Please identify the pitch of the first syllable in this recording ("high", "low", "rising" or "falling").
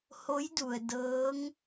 rising